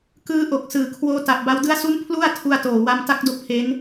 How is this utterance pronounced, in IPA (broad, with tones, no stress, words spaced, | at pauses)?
kɯː˦˥ʔo˨˩k̚sɯː˨˩kʰwoː˦˥ ta˨˩p̚ba˧w dɯ˦˥a̯su˦˥n pʰlu˥˩a̯tʰu˧a̯toː˨˩wa˧m ta˦˥k̚do˦˥k̚pʰe˦˥n